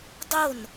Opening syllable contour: falling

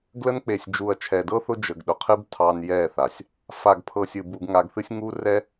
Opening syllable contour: high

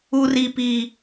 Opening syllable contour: high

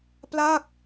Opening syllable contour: falling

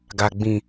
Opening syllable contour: low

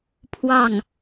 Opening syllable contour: falling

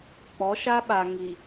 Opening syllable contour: rising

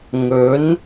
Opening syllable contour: rising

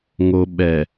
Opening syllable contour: low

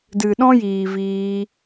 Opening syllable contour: low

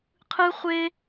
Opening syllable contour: high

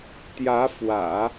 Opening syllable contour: rising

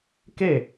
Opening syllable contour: falling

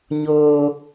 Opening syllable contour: high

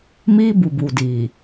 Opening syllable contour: high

